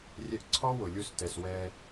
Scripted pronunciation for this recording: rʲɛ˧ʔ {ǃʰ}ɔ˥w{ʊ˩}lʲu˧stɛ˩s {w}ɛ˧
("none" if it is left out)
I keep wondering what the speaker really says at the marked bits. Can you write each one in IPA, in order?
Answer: ǀʰ, ʊ˩, w

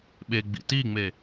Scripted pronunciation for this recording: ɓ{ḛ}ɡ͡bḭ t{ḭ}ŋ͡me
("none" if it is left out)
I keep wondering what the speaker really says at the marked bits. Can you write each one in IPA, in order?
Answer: e, i

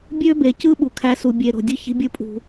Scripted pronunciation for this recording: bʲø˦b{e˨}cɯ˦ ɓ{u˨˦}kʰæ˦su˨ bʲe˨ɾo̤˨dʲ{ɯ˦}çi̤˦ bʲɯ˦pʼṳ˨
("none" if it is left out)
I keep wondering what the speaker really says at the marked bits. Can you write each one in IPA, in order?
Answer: e˨, u˨, ɯ˦

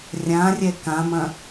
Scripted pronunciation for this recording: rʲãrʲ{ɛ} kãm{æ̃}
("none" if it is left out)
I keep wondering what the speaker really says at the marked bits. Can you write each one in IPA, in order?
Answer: ɛ, ɐ̃

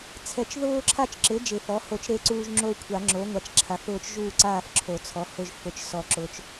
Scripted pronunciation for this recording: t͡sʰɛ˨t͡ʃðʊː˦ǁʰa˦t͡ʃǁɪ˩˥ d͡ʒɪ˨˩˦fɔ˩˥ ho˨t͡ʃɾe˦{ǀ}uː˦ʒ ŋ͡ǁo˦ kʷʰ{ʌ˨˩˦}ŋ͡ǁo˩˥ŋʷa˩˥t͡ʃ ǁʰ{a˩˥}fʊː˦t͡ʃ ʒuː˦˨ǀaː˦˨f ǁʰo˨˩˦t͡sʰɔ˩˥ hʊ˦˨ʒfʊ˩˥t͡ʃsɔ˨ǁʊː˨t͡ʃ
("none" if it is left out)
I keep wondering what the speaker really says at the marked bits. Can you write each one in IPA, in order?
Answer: ǀ, a˨˩˦, a˩˥

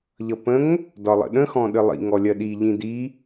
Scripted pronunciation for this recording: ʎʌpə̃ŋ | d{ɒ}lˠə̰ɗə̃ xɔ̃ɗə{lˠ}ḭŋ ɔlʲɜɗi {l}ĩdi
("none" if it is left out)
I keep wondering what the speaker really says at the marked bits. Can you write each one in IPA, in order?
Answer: ɒ, lˠ, ʎ

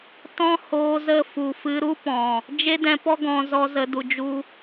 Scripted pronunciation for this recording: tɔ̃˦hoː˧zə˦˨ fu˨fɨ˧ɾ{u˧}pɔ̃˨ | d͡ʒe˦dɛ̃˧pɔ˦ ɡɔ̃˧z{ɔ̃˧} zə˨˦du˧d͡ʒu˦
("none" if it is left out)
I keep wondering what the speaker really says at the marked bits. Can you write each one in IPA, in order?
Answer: u˦, ɔ˧

